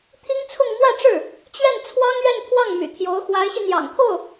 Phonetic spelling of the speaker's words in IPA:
t̪ʰi˥ŋt͡sʰʊ˥˧ŋ mwä˥˧ʈ͡ʂɻ̩˥˩ | t͡ɕɥɛ˥˩n t͡sʰwɑ˥ŋɥɛ˥˧npʰwɑ˥˩ŋ my̰˨˩t̪ʰjo˧˥ʊ̯ xwa˧˥ɪ̯ɕi˧ n̪jɑ̰˨˩ŋt̪ʰo˥˩ʊ̯

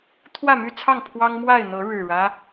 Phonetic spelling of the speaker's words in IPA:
t̪ʰwä˥˨my˥˨t͡sʰɑ˥˨ŋ pʰwɑ˦ŋmwa˥˨ɪ̯n̪ɤ˨˦ ɻɻ̩˨˩ɻä˦

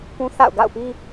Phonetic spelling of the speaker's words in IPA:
pũ˦θa̰˦˨ʊ̯ ɡa̰˦˨ʊ̯pi˦

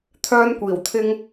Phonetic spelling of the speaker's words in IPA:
t̪ʰœː˥nkʷiː˨˩wt̪ʰɪ˥ŋ

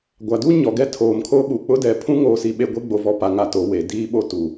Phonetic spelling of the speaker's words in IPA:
ɡʷa˨du˦ ɲɔ˨ɡɛ˦tʰoː˨mkʰo˦ ɓu˨k͡pʊ˦dɛ˨pʰũ˦ ŋoː˦si˦ɓe˦ ɡʷe˦ ɡ͡bo˨vɔ˨ pa˨ ŋa˨to˨ we˨ diː˦ ɓo˦tu˨

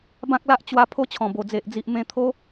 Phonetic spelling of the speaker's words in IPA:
bã˦k̚la˦ʔt͡ɕwa˧ pʰo˦t͡ɕʰɔ̃˨˩bo˨˩ d͡ze˨ʔd͡zi˨ʔ mẽ˧t̪ʰo˦

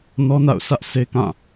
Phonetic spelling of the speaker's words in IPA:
nɔ˦na̰˦˨ʊ̯ sä˦ʔse˦kã˦˨

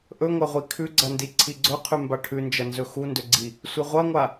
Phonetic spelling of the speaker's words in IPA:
ʔɵŋʷɐʁʷi kʰʉɡ͡ǀɐndi ǀʰiɡ͡ǀɵqʰʉ mbaʈʰʉnd͡ʒɐnzɵ xundɵɡ͡ǀi | sʷeʁʷɐŋʷa

